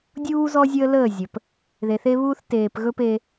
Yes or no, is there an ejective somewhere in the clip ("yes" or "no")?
no